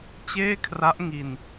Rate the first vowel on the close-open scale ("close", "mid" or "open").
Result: mid